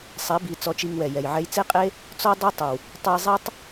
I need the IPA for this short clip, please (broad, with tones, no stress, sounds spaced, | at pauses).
sˤ e˨˦ b i˨ t͡s ɔ˧ t͡ʃ i˧ ŋ w ɛ˨ j ɛ˨ j ʕ ɛ˧ j t͡s e˦ qʼ e˦ | t͡s ɔ˦ dˤ e˦ tˤ ɵ˨ w | tˤ ɵ˧ j zˤ e˦ tˤ